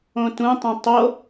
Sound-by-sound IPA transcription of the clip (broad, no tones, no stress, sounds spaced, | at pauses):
õ t ũ tˤ ũ tˤ o